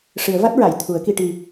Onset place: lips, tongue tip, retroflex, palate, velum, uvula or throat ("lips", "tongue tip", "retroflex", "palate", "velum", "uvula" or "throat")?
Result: retroflex